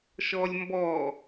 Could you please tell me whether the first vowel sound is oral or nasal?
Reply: oral